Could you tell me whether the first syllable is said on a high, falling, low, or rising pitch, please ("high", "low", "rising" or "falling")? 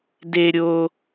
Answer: high